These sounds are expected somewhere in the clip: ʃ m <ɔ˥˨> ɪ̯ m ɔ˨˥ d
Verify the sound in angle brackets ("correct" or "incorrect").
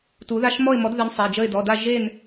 correct